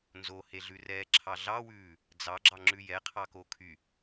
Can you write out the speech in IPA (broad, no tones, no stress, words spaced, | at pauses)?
nzoheɮʉrɛː ǁʰɑɮɑwʉː | d͡zɑɡ͡ǁɑ ŋ͡ǁʉjɛ qʰɑkokʰy